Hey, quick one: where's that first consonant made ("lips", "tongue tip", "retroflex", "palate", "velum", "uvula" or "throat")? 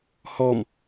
throat